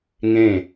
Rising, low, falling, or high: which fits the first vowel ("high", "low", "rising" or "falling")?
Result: falling